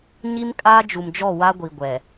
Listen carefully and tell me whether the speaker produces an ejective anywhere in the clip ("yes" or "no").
yes